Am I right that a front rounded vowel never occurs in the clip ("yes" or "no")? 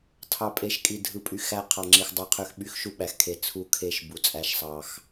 no